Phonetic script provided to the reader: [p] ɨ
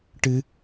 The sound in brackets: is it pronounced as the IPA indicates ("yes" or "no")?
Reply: no